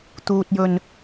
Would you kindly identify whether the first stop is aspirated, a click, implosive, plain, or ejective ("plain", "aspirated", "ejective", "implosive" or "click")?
plain